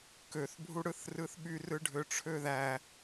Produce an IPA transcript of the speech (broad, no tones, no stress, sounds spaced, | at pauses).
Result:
k ø θ bʱ u ɽ ɯ θ r ɯ θ ɓ y r ɯ ɖʱ ø ʈ͡ʂʰ ø ð æ